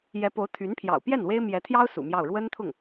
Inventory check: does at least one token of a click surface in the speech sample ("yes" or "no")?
no